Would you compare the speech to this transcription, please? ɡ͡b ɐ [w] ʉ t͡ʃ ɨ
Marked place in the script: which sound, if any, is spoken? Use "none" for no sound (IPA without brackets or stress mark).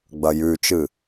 j